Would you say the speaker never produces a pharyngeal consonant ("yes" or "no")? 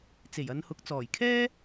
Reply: yes